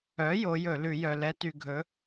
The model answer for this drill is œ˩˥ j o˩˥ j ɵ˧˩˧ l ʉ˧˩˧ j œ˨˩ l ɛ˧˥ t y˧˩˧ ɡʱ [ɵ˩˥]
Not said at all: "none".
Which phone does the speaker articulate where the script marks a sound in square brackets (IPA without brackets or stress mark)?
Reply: ɵ˩˥